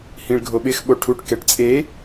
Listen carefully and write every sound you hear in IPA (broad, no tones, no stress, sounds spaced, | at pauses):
h ĩ ɭ ɡʱ o ɓ ɪ x ɓ o ʈʰ u ʈ k ɛ ʈ t͡sʼ e